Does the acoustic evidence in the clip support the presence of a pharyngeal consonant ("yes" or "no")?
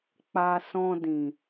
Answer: no